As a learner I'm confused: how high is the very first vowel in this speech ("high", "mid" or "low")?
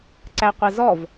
low